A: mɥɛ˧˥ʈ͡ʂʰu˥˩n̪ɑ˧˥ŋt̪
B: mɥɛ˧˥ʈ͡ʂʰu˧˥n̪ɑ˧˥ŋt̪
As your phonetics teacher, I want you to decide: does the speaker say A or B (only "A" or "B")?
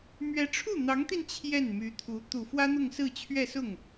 A